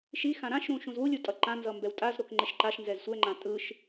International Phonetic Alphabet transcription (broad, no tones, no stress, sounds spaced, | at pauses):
ʃ i x ã ɾ ã ʃ ɾ ũ ʃ ũ z w u lʲ u tʼ ʌ ǃ ã n z ʌ m b ɛ w tʼ a z ɾ o k ŋ͡ǃ e ʃ ǃ a ʃ n z ɛ z sʷ ɛ ŋ͡ǃ ã tʼ ɯ ʃ